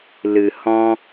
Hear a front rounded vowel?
no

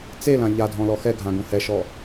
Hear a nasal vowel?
yes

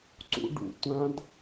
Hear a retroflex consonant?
yes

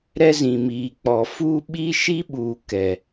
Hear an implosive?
yes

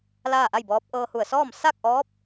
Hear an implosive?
no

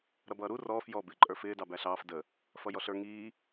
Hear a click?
yes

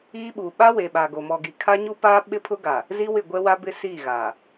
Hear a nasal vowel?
no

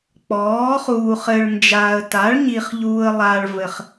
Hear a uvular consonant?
yes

